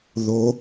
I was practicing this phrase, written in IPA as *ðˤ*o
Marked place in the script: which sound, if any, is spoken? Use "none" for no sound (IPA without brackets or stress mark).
ð